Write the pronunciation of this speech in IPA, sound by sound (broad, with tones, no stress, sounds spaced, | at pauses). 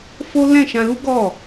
f o˦ l ɛ̃˦˨ ʃ ã˧ l u˦ ɡ ɔ˦˨